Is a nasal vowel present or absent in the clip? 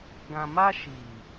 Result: present